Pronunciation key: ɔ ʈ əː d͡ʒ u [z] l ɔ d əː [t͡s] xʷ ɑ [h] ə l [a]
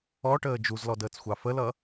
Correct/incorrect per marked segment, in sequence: correct, correct, incorrect: f, incorrect: ʌ

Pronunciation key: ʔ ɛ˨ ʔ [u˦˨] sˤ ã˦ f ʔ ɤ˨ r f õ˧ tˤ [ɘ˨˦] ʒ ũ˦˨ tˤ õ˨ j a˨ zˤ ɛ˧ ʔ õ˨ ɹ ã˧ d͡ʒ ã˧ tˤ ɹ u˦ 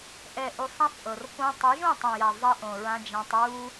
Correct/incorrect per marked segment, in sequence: incorrect: u˨, correct

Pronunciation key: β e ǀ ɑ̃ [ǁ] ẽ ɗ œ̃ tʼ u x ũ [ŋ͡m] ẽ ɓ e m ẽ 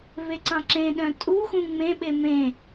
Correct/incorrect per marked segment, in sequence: correct, correct

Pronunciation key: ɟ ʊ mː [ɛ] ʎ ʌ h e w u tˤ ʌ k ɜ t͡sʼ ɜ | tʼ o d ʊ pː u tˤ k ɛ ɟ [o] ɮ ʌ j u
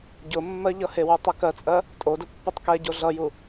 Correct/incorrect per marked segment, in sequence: incorrect: ɜ, correct

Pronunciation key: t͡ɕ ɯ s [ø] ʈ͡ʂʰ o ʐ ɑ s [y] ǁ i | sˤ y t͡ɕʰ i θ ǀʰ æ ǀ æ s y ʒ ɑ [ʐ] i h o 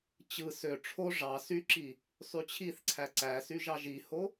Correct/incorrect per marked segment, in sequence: correct, correct, incorrect: ʒ

